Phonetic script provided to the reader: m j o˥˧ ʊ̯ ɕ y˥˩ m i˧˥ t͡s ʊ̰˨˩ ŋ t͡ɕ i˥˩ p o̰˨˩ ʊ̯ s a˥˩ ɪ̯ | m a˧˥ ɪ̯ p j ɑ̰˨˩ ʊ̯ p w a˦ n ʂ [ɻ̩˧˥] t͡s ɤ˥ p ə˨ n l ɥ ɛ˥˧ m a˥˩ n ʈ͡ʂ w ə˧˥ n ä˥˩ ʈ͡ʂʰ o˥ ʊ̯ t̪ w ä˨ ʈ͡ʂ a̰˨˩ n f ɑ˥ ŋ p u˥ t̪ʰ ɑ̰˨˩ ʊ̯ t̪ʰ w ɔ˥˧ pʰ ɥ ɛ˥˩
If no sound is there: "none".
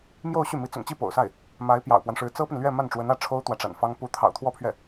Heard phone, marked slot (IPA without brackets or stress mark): ɻ̩˧˥